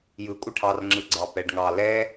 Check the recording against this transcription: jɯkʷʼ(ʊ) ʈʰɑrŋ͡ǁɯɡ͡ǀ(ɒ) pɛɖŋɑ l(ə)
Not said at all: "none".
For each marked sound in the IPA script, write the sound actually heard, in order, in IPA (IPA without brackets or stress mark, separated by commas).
ɯ, ɑ, ɛ